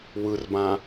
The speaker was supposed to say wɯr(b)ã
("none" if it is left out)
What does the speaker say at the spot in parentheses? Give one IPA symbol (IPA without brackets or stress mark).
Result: b